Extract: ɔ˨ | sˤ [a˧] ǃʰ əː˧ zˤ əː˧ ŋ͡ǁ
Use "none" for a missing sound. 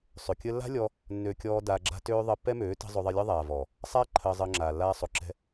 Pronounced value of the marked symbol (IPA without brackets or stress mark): a˦